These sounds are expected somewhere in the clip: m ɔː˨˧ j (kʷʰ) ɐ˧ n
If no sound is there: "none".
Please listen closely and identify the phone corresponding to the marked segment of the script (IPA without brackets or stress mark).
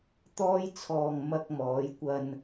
kʷ